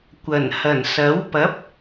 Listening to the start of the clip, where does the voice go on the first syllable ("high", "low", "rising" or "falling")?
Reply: low